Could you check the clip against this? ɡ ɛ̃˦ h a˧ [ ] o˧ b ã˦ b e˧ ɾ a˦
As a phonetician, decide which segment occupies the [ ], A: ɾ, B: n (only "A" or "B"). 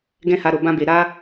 A